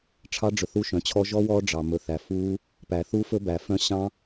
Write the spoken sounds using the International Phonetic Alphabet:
ʈ͡ʂʰ ɑ˦˥ ɖ͡ʐ ɵ˨ θ u˦˥ ʃ œ̃˨ t͡ɕʰ ɔ˦˥ ʒ ɔ˦˥ w ɔ˦˥ ɖ͡ʐ ɑ˨ m ɵ˨ θ æ˨ f u˦˥ | p æ˨ θ u˦˥ f ɵ˦˥ b æ˨ f œ̃˦˥ ɕ ɑ̃˦˥

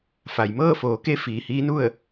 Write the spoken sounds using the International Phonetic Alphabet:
f a˩ j m ɤː˥˨ f oː˩˧ k e˧˥ f iː˩ h iː˧˥ n u˥˨ ə̯

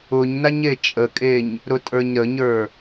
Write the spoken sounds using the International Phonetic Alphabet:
ʊ ɲ n a ɲ e t͡ʃʼ ə kʼ e ɲ | ɾ ʊ tʼ ə˞ ɲ ɾ ə ɲ ə˞

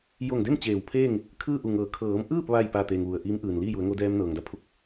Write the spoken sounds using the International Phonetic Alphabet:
j o˧˩ ŋ d e˥˨ m t͡ɕ eː˧˩ w pʰ eː˥˨ ŋ | kʰ ɯː˥˨ ʔ u˧˩ ŋ ɤː˩˧ kʰ ɤː˩˧ m ʔ ɯː˥˨ p̚ ʋ a˥˨ j p a˧˩ t̪ e˩ ŋ ʋ u˩ ə̯ ʔ iː˧˥ m ʔ ɯː˩ n l iː˥˨ j u˩˧ ə̯ ŋ o˧ d ɛː˧ m n ɤː˩ ŋ d a˧ pʰ u˧˩ k̚

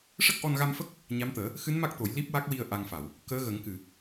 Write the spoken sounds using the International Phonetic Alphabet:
ʂ ə˦˥ k̚ ʔ ɔ˧ n ɣ a˧ m f ə˦˥ k̚ | ɲ a˧˥ m t̪ əː˨˩˦ | x ɨ˧˥ n m a˦˥ k̚ t̪ o˨˩˦ j l i˦˥ p̚ w a˦˥ k̚ w i˧ ə̯ ʔ a˧ ŋ f a˨˩˨ w | k əː˧˥ ɣ ə˨˩˦ ŋ k ɨ˨˩˨

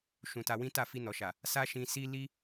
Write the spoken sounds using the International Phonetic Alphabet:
ʃ ũ˧ t a˧ w ĩ˦ t a˦˨ f i˧ n ɔ˨ ʃ a˨ | s a˦ ʃ ĩ˧ s i˦ l i˦

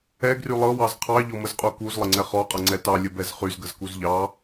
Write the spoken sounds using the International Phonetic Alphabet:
ɛ ɡ r y lˠ ɤ w ɑ z qʰ ɑ ʎ ɔ m ə z qʼ u k u z lˠ ə ŋ͡ǀ ɛ χ ɔ qʼ ɤ ŋ͡ǀ ɛ t ɑ lʲ ə b ɛ z χ y z ɡ ə z k u z ʎ ɑ

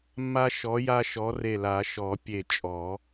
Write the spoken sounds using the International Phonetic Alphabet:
mː a˦ ʃ ɔ˨˦ j a˦ ʃ ɔ˨˦ r e˧˩ l a˨˩˦ ʃ ɔ˨˩˦ pʲ e˧˩ t͡ʃʼ ɔ˨˩˦

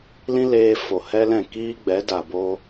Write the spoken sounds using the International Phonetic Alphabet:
l ĩ˦ l eː˧ f o˨ h ɛ˦ l ɛ̃˦˨ k iː˦ ɡ͡b ɛ˨˦ d a˨ b oː˧

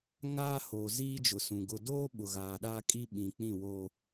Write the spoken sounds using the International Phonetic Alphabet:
ŋ aː˦ h oː˨ z iː˦ d͡ʒ ʊ˨ s ũ˨ ɡ ʊ˨ d oː˦ ɓ ʊ˨ ɣ aː˨ ɗ aː˦ kʼ i˦ ɓ ĩ˨ k͡p ĩ˦˨ w oː˦

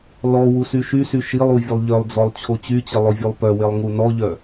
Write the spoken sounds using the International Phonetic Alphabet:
l ɔ w u s y ʃ y s y ʃ i lˠ u vʲ ə lˠ ʎ œ lˠ d͡z ɔ lˠ t͡ɕʰ o t͡ɕ y t͡ɕ ə lˠ o vʲ u lˠ p œ w e lˠ ŋ u n ɔ ʎ œ

